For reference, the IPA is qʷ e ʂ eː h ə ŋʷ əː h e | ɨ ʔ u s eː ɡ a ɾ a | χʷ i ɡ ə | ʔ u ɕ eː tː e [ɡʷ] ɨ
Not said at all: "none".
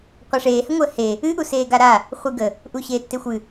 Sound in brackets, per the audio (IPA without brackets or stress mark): xʷ